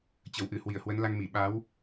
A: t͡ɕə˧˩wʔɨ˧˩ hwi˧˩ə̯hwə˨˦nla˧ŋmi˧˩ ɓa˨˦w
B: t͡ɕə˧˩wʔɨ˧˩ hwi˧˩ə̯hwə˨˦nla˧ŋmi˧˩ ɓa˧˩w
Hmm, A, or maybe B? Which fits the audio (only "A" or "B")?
A